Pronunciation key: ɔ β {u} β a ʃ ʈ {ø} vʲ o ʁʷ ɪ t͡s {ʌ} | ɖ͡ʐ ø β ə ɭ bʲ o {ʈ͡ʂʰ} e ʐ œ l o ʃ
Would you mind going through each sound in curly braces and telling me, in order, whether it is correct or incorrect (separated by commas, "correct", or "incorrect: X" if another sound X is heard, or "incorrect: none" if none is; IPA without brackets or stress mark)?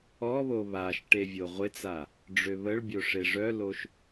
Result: incorrect: o, incorrect: e, incorrect: a, incorrect: ʂ